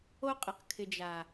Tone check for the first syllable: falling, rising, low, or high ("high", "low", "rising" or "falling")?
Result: high